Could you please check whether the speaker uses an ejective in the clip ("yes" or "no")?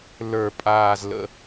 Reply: yes